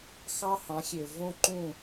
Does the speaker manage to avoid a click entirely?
no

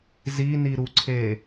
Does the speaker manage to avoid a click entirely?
no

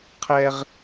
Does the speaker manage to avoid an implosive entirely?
yes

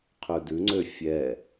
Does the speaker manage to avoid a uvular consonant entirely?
no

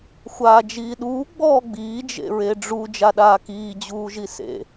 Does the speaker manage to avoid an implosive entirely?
no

